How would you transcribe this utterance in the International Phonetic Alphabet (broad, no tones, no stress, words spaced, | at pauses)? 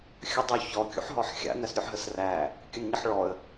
xʲədˤoçɔ kʲṵħɦɔħxʲa̰ næsɾʲuħɦəsræ | kʲənɲəħɭɔə̯